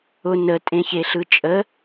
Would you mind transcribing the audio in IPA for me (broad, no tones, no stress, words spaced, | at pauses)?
ʊ nətʼẽçeɬɯ t͡ʃʼə